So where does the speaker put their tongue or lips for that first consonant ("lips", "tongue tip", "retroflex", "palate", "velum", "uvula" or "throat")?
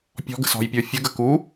lips